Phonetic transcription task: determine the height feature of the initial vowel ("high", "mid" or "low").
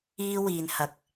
high